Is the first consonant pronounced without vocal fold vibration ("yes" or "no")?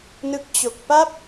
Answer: no